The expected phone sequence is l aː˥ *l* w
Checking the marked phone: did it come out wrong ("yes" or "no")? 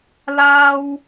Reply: yes